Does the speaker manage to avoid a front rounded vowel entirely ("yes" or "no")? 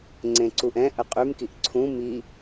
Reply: no